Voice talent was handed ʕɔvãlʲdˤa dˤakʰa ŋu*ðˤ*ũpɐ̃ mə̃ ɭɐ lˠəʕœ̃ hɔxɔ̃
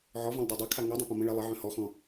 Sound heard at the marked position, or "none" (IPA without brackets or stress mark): dˤ